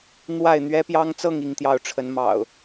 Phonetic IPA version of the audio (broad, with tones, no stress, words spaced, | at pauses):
n̪wa˥˨ɪ̯n̪ɥɛ˦pjɑ˦ŋt͡sɤ˥˨ŋ i˥˨ŋt̪jɑ˥˨ʊ̯ʈ͡ʂʰə˨˦n mɑ̰˨˩ʊ̯